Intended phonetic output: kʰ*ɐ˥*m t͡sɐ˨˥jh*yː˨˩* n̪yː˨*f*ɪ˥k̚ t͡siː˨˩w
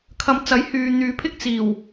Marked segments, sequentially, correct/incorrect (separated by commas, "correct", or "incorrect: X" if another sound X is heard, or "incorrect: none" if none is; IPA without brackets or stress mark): incorrect: ɐ˨˧, incorrect: yː˨, incorrect: pʰ